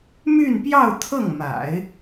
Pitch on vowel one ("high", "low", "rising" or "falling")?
falling